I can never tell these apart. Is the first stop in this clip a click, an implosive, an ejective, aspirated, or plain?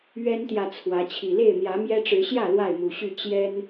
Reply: plain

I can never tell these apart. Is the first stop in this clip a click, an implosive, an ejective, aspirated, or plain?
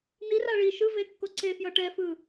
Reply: plain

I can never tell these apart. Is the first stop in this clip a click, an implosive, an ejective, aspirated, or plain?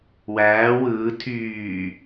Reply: aspirated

